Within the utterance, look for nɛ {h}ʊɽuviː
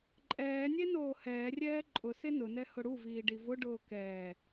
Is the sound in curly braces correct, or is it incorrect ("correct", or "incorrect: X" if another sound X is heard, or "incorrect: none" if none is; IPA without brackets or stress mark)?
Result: correct